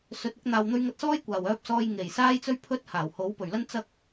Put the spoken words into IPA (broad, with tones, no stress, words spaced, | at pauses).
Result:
sɵ˨˥t̚ ʊ˧k̚n̪aː˨w n̪ɵ˧ɥŋɐ˧t̚sɔː˥j kʷaː˨˩wœː˧p̚ sɔː˧j ŋe˨˩j saː˥jt͡sɵ˥ɥpʰɵ˥t̚ haː˨˩w ho˨˥wpɵ˨˩ɥlɐ˥n t͡sɐ˧k̚